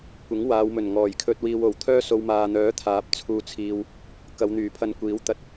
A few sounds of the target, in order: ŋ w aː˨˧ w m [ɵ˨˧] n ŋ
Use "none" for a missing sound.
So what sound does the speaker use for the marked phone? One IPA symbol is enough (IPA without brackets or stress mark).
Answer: ɵ˨˩